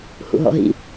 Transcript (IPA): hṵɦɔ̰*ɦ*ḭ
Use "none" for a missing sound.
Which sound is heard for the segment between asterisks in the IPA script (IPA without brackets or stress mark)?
ɦ